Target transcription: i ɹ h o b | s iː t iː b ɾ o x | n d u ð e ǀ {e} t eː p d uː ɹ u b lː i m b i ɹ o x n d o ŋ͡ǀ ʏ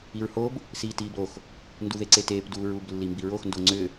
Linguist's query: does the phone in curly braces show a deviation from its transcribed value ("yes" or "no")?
no